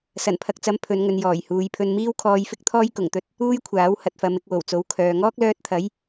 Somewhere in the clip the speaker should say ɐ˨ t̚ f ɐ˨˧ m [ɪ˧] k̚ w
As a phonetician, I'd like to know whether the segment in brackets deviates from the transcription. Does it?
no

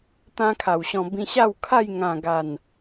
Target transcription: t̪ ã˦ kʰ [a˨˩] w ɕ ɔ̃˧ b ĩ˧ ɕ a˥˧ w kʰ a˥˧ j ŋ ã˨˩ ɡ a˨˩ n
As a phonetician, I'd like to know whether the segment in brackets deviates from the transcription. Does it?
no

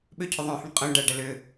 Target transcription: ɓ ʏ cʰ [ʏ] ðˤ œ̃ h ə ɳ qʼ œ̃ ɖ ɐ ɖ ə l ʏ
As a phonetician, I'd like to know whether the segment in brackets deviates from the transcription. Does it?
no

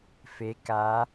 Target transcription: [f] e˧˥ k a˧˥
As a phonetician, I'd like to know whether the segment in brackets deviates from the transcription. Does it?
no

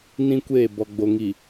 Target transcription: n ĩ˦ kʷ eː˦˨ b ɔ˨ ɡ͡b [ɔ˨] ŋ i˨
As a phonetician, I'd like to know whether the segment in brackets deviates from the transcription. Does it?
yes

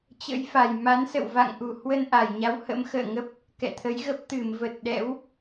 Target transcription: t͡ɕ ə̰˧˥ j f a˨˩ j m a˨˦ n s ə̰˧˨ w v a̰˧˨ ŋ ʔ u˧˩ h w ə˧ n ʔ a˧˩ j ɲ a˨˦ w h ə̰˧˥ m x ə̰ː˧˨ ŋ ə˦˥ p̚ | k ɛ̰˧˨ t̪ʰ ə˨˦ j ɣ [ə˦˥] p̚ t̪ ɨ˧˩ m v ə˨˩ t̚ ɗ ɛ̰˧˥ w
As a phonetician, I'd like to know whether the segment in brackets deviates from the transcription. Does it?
no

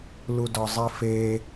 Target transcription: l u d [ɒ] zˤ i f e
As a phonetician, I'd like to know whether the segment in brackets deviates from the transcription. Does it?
no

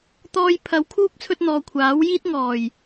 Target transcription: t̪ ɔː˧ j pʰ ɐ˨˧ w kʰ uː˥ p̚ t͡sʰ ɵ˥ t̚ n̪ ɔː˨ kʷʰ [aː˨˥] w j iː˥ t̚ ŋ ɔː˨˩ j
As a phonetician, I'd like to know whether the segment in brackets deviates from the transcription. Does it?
no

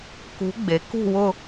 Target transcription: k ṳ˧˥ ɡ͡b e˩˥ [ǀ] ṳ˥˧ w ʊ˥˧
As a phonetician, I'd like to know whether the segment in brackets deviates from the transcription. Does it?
yes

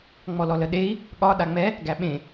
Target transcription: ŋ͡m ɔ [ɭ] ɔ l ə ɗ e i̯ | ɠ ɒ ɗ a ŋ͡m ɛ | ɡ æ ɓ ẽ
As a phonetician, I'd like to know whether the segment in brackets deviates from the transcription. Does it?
yes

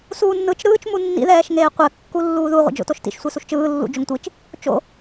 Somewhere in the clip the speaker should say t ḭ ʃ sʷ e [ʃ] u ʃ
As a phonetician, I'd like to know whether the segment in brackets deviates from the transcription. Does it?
yes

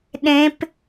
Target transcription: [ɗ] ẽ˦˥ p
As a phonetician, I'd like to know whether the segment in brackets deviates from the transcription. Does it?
no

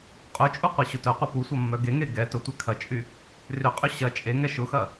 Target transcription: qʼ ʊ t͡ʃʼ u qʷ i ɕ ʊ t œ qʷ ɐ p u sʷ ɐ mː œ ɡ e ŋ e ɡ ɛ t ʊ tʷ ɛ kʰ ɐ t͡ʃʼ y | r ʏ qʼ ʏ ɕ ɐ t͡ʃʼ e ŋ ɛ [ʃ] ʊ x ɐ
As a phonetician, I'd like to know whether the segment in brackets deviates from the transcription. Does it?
no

